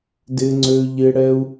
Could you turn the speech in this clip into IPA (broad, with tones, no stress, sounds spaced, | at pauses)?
d ɪ˧ ŋ͡ǀ ø˧ ʎ ɪ˧ ɽ ɛ˧ u̯